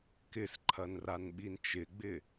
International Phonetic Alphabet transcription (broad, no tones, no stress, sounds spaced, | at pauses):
k ɪ s ǃʰ ɐ n r a n ɓ i n t͡ʃ ɪ ɡ͡b ɪ